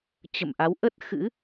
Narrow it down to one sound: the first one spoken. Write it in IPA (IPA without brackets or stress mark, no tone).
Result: t͡ɕ